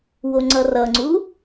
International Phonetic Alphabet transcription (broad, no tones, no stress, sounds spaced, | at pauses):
w o ŋ͡ǀ ʌ r ʌ ŋ͡ǀ u